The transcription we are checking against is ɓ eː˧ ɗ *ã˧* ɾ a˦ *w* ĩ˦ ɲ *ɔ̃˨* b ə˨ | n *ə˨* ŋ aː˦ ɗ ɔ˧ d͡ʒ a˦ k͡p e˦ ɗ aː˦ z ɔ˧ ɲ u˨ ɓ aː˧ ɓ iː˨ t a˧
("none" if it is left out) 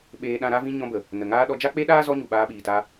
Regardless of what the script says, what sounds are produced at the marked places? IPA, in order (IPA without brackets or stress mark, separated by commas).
ã˧, v, ɔ̃˧, ə˨